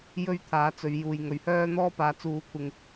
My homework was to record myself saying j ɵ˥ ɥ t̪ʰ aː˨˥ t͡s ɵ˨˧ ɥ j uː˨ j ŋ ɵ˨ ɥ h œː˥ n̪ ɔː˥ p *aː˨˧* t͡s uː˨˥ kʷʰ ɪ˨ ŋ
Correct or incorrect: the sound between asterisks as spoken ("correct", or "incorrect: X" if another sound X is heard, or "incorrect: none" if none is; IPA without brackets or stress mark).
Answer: correct